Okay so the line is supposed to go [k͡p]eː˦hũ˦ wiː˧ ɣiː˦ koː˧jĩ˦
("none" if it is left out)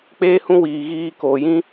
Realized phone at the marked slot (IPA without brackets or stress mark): k͡p